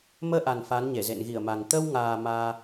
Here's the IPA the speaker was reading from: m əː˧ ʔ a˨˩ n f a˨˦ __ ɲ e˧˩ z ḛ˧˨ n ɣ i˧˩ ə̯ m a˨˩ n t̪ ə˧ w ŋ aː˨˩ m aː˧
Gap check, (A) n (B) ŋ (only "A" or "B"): A